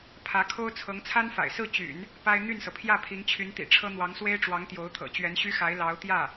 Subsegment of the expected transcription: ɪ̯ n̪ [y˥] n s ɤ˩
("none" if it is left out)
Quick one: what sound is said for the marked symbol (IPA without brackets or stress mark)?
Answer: y˥˩